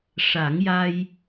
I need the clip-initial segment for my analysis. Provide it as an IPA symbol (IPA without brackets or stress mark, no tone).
ʂ